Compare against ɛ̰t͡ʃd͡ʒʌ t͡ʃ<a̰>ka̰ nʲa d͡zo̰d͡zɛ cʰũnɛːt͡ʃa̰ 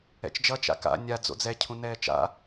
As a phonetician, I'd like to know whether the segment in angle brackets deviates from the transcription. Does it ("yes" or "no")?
no